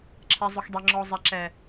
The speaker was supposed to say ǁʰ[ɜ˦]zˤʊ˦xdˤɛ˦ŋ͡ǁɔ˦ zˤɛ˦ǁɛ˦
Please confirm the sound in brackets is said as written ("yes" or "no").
no